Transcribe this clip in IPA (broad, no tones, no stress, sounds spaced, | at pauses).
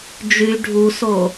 d͡ʒ y ɖʱ u s o